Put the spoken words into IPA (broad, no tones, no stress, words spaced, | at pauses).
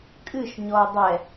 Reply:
kʼɨʃ ɲɔɐ̯dˤɛ